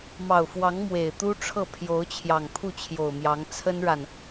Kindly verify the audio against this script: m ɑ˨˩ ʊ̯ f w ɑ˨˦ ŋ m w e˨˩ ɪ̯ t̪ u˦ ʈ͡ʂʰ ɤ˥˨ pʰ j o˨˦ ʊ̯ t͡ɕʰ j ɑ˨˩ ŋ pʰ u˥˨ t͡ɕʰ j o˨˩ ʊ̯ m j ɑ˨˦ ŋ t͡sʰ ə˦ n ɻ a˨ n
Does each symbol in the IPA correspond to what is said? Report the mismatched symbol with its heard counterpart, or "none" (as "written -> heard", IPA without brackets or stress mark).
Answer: none